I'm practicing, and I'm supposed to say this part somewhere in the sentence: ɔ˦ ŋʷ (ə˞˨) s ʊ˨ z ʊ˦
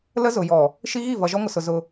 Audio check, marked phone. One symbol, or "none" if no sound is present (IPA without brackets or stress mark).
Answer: ə˨